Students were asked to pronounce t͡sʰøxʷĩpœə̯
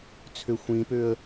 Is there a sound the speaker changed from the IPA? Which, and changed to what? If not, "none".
œ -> ø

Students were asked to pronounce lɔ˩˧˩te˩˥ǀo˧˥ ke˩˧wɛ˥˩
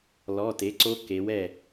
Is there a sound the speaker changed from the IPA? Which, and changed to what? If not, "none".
none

